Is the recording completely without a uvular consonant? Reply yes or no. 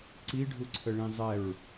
yes